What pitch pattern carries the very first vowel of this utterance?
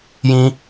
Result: high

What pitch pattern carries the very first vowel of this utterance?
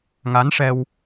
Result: rising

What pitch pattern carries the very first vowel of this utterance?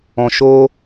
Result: low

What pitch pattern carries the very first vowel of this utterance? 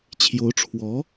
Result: rising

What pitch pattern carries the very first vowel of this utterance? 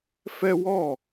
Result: high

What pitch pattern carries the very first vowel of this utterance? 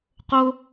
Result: high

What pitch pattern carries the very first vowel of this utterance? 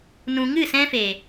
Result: low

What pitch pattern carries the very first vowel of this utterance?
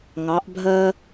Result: rising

